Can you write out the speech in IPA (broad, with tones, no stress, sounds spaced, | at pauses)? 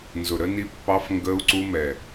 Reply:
n z ʊ˨ ɾ ə˧ n i˧ pː ɑ˧ f ŋ ɡ əː˧ u̯ ǀ u˧ m ɛ˨